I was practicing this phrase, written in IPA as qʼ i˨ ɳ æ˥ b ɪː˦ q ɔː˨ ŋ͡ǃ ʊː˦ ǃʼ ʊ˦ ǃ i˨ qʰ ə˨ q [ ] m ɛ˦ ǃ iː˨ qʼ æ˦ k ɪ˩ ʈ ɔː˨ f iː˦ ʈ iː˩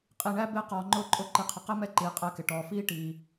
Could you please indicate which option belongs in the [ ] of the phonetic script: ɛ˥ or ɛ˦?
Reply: ɛ˥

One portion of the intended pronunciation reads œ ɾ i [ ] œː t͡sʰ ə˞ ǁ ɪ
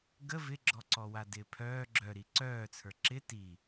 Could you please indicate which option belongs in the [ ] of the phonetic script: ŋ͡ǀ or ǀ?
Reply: ǀ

